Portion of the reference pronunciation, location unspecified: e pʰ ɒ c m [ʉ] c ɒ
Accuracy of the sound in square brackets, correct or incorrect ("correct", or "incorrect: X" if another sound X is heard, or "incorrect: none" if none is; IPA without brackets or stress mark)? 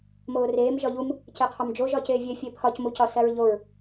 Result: incorrect: u